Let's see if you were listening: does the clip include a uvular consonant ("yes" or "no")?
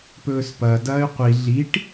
yes